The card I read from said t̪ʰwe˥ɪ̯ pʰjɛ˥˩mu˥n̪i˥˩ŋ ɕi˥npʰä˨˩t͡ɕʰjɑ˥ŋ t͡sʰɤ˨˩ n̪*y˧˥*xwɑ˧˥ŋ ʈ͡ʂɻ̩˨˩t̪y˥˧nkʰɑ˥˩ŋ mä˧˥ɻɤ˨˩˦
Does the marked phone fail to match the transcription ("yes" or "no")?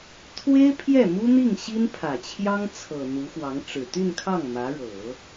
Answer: yes